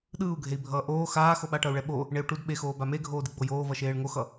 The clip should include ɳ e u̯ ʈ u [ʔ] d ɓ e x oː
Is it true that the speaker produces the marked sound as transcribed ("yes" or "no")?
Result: no